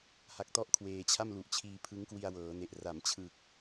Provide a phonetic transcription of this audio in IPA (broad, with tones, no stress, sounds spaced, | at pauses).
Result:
h a˨˩ k̚ t ɔ˦˥ ʔ kʰ w eː˧ t͡ɕʰ a˥˩ m l u˨˩ ʔ t͡ɕʰ iː˧ pʰ ɯ˦˥ ŋ k w i˧ a̯ w ɤː˩˦ n e˨˩ ʔ r a˩˦ m t͡ɕʰ ɯ˨˩ k̚